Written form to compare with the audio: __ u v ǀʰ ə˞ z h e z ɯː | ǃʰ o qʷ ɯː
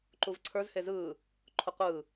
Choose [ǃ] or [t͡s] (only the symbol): ǃ